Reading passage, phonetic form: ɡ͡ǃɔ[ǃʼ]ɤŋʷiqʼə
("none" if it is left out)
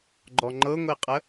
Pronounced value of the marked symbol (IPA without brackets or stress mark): ŋ͡ǃ